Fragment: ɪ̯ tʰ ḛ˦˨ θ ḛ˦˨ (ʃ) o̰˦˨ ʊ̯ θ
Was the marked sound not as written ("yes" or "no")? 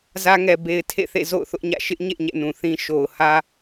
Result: yes